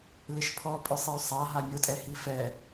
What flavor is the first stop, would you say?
aspirated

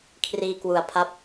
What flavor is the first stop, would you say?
aspirated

